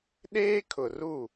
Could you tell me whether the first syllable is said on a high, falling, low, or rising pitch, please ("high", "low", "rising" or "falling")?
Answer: high